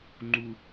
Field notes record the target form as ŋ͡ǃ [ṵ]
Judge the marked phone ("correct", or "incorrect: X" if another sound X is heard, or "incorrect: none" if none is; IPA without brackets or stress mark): incorrect: u